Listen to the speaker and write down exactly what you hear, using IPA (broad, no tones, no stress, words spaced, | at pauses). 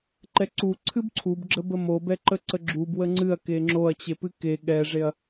ǃɛǀu ǀʰɨbǀʰub ɡ͡ǁəbəmo bɛǃəǀəɡ͡ǁub wəŋ͡ǀɨɐ̯ keŋ͡ǁoɐ̯t͡ɕe pɨke ɠɛʐeɐ̯